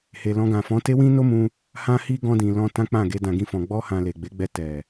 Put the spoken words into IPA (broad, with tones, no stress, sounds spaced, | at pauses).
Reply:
h e˨ l ɔ̃˧ ɡ ã˨ f ɔ̃˨˦ t e˦ w ĩ˦ n o˦ m ũ˧ | h ã˧ h i˧ ɡ ɔ̃˧ d ĩ˨ l ɔ̃˧ t ã˦ k͡p ã˦˨ ɡ e˧ d ã˨ ɡ ĩ˧ f ɔ̃˨ ɡ͡b ɔ˧ h ã˨ l e˨ ɡ͡b e˨˦ ɡ͡b ɛ˧ t ɛ˨